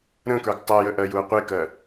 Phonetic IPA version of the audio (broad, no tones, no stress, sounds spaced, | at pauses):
ɾ ə̃ k ə˞ ɡ tˤ ɜ j ə ʔ ɜ j u ɐ̯ qʷ e k ɜ